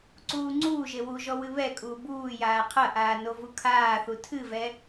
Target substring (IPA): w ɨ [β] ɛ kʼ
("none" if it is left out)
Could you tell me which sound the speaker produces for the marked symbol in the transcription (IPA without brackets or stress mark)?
β